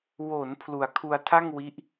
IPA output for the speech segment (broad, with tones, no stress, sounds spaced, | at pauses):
w o˩˦ n pʰ l u˨˩ a̯ kʰ u˧ a̯ tʰ a˥˩ ŋ w i˦˥ ʔ